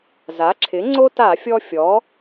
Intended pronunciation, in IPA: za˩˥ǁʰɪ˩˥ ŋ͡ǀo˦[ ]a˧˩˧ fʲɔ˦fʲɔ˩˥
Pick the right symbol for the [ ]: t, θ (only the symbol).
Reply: t